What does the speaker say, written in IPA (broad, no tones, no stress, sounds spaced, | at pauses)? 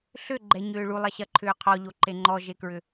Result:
ɬ ʏ ɡ͡ǃ ɛ ɲ ʏː ɭ u lˠ ɐ ɕ ɐ ǃʰ ʏː qʰ ɔ ʎ o ǃ e ŋ͡ǃ ɔ ʒ e k ɹ ʏ